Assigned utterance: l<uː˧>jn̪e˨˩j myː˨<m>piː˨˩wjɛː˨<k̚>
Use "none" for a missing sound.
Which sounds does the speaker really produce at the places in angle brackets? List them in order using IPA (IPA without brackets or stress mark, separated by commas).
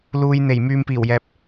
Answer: uː˨, m, p̚